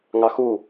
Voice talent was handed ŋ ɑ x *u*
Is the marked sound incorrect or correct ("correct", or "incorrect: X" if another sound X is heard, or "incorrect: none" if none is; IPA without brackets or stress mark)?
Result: correct